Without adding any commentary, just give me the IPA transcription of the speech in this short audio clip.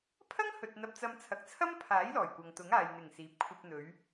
pʰ ɐ˥ ŋ h ɵ˨ t̚ n̪ ɐ˧ p̚ t͡s ɐ˧ m t͡sʰ ɐ˨˥ k̚ t͡sʰ ɐ˥ m pʰ aː˨˥ j l ɔː˨˩ j kʷ ɐ˨ ŋ t̪ ʊ˨˥ ŋ aː˨ j n̪ ɪ˨˩ ŋ s iː˨ p̚ kʷʰ ɐ˧ p̚ n̪ ɵ˨˧ ɥ

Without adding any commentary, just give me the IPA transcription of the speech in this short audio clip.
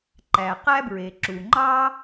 ǃ æ˩ q æ˥ b ɹ e˩ ǁ u˩ ŋ͡ǃ ɑ˥

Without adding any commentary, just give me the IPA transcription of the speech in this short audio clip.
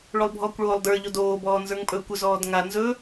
ɭ o lˠ bʱ ɔː kʷ ɭ oː lˠ d ə˞ ʎ o d oː b ɔː n z ə˞ ŋ pʼ ɵː kʷ ʏ z ɔː d ŋ a n z ɵ

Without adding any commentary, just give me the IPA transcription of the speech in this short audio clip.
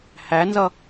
h æ n z ʌ

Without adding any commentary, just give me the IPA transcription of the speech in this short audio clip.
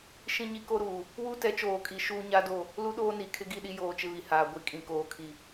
ʃ ĩ˦ ɲ i˦ k o˦ ɾ uː˨ | w u˦ t ɛ˨˦ t͡ʃ oː˨ kʼ i˨ ʃ uː˦ ɲ a˦ d o˦˨ | l u˦ ɗ oː˦ n i˨ kʰ ɪ˦ ɡ i˦˨ ɗ i˦ j oː˦ t͡ʃ ɪ˦ β i˨ h aː˨ ɡʷ i˦ kʼ ĩ˨ k oː˨ kʰ i˨

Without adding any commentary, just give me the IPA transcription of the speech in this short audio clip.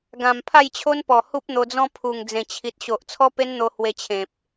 ɡ ã˨˩ m pʰ a˥˧ j t͡ɕʰ o˦ n p ɔ˨˩ h u˦ p̚ n̪ o˧ d͡z ɔ̃˦ pʰ u˨˩ ŋ d͡z ẽ˨˩ t͡ɕʰ i˨ t̚ ɕ o˨ ʔ t͡sʰ ɔ˦ p e˦ n n̪ o˧ h w e˧ t͡ɕʰ ẽ˨ p̚

